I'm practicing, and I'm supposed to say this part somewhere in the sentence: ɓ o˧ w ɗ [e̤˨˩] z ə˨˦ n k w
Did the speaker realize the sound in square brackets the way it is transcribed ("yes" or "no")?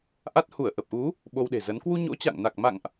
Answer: yes